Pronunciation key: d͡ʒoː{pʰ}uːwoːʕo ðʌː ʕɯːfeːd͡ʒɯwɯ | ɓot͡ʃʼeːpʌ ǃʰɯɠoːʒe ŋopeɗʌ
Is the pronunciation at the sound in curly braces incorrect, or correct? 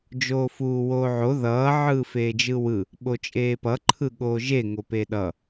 incorrect